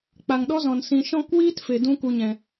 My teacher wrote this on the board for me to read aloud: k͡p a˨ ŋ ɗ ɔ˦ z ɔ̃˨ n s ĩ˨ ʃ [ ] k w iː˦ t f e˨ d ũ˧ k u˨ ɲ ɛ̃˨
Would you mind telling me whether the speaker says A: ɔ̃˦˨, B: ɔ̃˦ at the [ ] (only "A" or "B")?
A